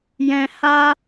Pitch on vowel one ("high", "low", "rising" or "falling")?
high